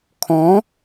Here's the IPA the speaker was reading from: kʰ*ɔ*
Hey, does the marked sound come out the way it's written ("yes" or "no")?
no